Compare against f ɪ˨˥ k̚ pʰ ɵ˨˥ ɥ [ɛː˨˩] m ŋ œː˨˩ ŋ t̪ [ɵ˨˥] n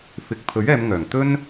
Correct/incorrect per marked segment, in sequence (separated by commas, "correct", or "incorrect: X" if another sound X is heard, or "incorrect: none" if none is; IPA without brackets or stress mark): incorrect: ɛː˨˧, incorrect: ɵ˥